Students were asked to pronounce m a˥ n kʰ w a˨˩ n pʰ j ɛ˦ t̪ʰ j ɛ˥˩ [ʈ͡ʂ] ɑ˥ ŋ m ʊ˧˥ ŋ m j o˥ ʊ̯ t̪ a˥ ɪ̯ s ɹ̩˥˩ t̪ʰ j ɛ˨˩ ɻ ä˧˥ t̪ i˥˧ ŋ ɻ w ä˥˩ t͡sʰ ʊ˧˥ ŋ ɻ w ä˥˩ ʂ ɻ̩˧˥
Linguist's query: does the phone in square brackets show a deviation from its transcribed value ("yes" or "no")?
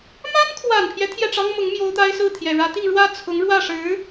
no